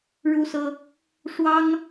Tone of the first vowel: high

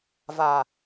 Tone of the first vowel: low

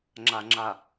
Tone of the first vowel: low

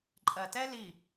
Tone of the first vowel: low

